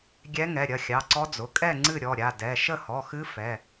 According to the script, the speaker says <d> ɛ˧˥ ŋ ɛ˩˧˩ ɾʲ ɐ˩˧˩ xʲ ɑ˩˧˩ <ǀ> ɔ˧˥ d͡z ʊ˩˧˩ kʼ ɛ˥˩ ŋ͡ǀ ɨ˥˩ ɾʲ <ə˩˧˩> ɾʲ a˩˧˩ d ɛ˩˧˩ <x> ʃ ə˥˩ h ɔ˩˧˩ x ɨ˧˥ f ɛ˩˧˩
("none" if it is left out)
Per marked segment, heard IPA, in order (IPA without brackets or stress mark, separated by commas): ɡʲ, ǀ, ɔ˩˧˩, none